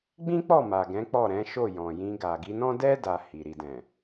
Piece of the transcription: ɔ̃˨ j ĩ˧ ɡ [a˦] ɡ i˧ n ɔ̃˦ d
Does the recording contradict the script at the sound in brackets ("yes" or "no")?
yes